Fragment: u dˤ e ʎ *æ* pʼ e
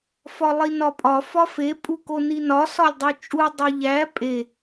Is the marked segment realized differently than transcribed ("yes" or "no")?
no